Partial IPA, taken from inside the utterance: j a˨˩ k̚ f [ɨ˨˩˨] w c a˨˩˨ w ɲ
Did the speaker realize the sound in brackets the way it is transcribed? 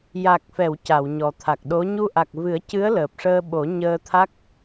no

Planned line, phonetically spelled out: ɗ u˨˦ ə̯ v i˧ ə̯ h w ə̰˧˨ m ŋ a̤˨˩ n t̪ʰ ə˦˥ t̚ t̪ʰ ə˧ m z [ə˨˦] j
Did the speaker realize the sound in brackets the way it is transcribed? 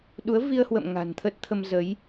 yes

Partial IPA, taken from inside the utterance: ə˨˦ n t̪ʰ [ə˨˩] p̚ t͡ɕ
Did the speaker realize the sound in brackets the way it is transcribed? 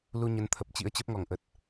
yes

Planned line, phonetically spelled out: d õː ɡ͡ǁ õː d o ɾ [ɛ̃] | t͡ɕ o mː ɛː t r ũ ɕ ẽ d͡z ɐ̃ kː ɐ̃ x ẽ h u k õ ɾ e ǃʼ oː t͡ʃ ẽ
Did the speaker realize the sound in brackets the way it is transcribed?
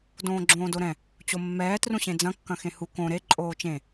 yes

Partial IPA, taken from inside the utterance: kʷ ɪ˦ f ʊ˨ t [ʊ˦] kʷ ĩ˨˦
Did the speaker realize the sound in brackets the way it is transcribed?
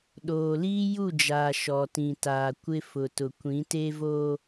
no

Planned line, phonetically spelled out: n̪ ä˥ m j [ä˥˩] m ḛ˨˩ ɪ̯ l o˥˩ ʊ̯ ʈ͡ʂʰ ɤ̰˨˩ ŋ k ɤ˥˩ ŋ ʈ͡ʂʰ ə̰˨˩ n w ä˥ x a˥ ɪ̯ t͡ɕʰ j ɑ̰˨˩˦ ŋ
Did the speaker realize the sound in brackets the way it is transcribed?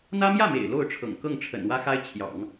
yes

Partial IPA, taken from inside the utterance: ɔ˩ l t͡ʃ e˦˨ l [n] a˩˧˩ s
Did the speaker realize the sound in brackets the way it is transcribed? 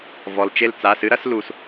no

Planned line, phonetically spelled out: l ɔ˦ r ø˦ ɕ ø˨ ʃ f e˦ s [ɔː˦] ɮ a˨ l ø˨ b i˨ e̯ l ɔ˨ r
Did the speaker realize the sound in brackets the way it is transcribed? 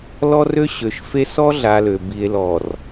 no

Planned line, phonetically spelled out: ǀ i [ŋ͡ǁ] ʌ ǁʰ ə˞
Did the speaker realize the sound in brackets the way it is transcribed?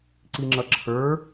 yes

